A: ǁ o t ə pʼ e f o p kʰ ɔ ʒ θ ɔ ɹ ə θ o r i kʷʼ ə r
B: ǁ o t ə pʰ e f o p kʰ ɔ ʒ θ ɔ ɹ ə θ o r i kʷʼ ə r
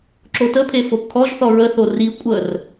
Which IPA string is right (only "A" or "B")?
B